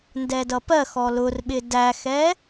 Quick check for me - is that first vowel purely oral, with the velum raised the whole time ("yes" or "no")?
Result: yes